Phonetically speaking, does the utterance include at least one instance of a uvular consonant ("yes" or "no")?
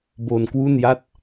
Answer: no